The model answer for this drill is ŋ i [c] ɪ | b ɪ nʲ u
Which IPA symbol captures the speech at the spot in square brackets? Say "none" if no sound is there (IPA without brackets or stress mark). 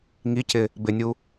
c